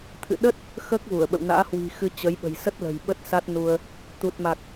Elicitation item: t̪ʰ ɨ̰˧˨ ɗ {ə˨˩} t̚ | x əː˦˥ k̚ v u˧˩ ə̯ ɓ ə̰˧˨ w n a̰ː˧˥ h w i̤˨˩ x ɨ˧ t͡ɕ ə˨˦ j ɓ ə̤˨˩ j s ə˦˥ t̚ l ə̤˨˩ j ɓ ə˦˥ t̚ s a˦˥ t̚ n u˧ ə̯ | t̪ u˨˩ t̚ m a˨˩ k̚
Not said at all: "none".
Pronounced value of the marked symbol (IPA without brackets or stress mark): ə˦˥